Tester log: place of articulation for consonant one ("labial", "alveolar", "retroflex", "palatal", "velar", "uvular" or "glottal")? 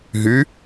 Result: glottal